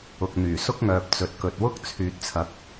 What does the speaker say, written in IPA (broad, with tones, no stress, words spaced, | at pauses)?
ʊ˨k̚n̪yː˨˩sʊ˥k̚ŋœː˨p̚ t͡sɵ˨t̚kɵ˨t̚wʊ˥k̚ t͡sʰyː˨t̚t͡sʰɐ˨˥k̚